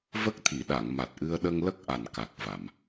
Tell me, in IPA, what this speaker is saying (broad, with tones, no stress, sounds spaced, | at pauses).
v ə˦˥ k̚ t̪ʰ i˨˩˨ ɗ a˨˩˨ ŋ m a˨˩ t̚ ʔ ɨ˧ ə̯ ɗ ə˧ ŋ l ə˦˥ k̚ ʔ a˨˩ n k a˨˩ k̚ v a˨˩˨ m